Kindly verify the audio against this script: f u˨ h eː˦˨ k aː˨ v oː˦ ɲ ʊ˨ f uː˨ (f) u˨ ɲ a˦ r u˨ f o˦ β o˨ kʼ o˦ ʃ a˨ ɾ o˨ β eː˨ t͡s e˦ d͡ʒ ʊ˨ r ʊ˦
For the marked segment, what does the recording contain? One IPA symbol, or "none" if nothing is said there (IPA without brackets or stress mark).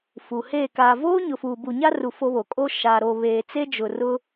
b